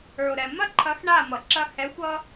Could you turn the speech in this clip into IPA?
ə˞˨o̯ɾɛ˨ mɐ˦ǃʰɐ˨˦x ɳa˦˨mʌ˨ǁɐ˦ hɛ˨˦xʷʌ˦

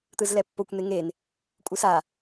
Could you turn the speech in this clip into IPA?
t̪ɯzlɛpːokʷ n̪eŋen | kʷʼɯsa

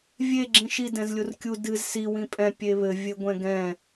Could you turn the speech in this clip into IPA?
vʲe ɡ͡ǁĩʃi dɛ̃zlʲurkʲu dɨz si wĩpʼɛ̃ pʲeβɘ vʲɘɡʷɛ̃ɡɛ̃

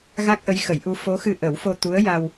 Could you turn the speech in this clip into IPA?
ɣa˦˥k̚ʔə˧˥jxə˨˩˦jʔu˧˥ fo˧˥xɨ˧ ʔə˨˩˦wfo˧t̪u˧˥ə̯ja˧w

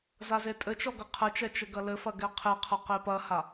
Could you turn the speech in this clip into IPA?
zazetʼɘt͡ʃɔ ɡɐqʰɘt͡ʃɛ t͡ʃɘɡɐlɘfɐ ɡɛqʰeqʰɐ qepɐha

